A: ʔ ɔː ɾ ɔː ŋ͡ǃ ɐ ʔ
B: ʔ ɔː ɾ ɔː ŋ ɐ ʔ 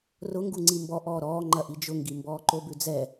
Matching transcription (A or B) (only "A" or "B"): A